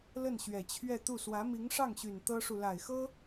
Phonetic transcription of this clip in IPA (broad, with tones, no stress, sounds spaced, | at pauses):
l ə˥˩ n ɕ ɥ ɛ˨˩ t͡ɕʰ ɥ ɛ˥˧ t̪ u˥˩ s w ä˧˥ m i˧˥ ŋ ʂ ɑ˥˩ ŋ ɕ y˨˩ n t̪ ɤ˥ ʂ u˨ l a˨˩ ɪ̯ x ɤ˥